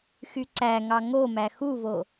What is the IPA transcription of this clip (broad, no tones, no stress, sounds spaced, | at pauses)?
x y ǀ æ ŋ ɑ ŋ o m æ x u v o